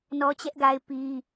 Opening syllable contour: high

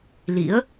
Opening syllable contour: rising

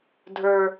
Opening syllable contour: low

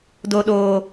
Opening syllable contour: low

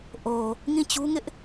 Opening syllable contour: low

